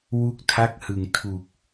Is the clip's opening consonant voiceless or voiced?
voiced